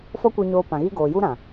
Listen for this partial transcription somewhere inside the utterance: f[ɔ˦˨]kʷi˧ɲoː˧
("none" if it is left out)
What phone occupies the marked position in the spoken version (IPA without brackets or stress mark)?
ɔ˦